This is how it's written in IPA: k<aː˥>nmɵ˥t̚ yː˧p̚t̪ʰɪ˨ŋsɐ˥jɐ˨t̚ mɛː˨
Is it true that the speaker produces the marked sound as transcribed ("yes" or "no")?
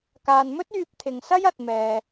no